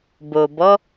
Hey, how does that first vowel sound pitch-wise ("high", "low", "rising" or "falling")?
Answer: low